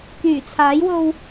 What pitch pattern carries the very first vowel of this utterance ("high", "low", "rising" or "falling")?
low